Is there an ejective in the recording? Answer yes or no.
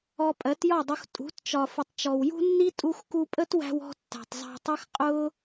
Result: yes